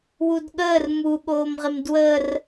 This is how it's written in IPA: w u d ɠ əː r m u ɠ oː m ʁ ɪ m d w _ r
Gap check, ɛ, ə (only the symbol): ə